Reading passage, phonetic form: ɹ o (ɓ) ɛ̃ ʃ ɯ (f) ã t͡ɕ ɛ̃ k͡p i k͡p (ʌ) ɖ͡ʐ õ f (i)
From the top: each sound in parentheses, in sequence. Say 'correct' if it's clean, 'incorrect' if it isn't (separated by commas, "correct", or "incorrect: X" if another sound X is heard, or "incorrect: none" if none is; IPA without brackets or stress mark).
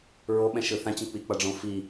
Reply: correct, incorrect: θ, correct, correct